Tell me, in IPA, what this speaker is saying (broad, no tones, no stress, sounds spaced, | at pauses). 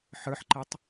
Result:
ħ ə˞ ħ ǃ e tˤ